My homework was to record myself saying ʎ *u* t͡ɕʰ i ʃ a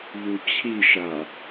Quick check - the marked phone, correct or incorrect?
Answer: correct